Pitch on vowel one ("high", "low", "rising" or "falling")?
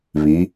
rising